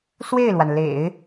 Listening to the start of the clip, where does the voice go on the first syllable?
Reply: falling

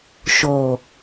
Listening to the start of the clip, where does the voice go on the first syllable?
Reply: low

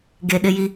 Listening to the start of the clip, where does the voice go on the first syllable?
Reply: low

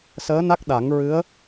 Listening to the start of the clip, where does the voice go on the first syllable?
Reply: rising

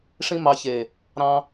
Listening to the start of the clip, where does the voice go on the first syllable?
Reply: high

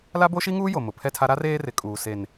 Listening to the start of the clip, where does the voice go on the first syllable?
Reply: high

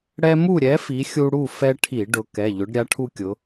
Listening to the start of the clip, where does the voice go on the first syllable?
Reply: high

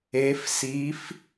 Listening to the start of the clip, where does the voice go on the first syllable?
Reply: rising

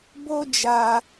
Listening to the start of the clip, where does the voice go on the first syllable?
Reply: high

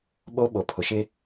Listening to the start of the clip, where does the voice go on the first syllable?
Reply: high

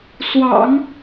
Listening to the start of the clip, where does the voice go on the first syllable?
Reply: low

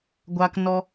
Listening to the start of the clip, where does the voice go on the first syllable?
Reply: high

